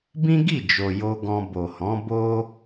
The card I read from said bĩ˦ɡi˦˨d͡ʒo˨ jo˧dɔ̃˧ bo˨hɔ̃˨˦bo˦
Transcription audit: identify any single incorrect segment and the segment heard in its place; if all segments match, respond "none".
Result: d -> ɡ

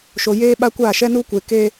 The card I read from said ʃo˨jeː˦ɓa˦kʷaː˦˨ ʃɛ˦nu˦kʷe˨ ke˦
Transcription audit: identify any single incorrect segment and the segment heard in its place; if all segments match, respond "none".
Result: none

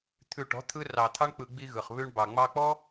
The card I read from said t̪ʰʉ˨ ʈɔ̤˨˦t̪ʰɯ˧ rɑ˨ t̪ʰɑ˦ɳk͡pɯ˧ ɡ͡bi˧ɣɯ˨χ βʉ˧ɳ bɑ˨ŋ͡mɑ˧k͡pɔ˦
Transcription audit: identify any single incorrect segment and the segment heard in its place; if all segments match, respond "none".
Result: none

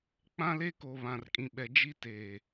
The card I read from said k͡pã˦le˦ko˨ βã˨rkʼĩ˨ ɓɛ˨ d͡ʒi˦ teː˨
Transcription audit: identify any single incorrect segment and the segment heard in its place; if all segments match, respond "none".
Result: none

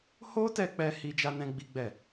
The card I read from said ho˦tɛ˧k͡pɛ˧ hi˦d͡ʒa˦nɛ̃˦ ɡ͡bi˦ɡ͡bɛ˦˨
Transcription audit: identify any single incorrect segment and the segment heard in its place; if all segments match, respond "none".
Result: none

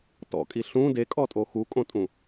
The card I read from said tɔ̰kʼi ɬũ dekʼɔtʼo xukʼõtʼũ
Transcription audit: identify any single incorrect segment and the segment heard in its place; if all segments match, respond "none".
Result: none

